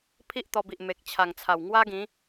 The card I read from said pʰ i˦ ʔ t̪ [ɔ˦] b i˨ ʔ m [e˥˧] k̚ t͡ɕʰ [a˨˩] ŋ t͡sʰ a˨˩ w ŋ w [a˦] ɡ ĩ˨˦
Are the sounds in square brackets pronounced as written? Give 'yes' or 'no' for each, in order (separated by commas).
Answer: no, no, yes, yes